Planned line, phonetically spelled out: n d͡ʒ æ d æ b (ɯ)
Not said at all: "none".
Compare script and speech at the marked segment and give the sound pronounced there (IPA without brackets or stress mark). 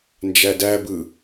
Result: ɯ